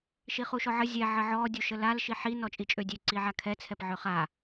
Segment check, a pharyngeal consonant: present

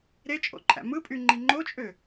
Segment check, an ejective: present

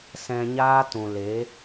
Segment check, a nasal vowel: present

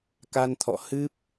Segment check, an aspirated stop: present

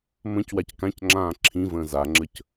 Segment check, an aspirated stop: present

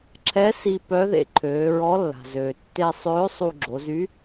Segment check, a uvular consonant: absent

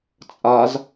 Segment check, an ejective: present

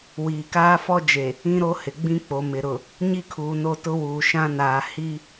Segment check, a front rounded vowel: absent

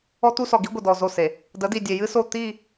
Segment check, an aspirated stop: absent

